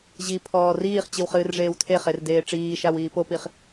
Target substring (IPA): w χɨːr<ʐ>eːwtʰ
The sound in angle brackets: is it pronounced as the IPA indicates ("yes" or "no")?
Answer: yes